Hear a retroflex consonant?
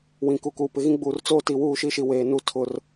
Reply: no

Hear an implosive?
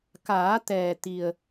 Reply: no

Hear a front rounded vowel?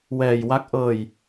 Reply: no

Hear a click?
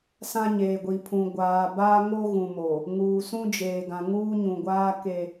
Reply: no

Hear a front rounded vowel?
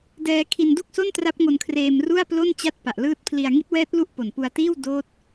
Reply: no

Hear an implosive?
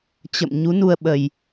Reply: yes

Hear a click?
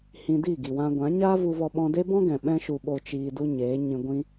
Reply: no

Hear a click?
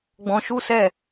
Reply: no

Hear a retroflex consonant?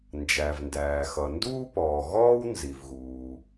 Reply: no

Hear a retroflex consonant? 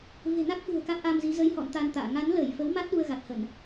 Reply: no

